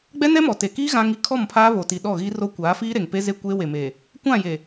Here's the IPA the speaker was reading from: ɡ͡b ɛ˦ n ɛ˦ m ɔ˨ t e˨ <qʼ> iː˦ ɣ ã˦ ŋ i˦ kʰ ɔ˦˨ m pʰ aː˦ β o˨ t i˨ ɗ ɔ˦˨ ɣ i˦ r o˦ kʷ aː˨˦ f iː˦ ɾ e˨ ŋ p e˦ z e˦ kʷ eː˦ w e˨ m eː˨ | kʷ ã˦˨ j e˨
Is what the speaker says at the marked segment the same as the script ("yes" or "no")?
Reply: no